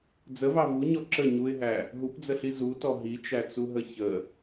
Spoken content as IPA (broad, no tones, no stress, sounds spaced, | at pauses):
d͡z ə v ɑ v u ɲ ɔ ǁ ə ɲ u ɪ̯ ɦ æ | ɦ u p d͡z ə ɬ i z u t ɔ ɦ i t͡ʃ æ t͡s u ɦ ə ç ə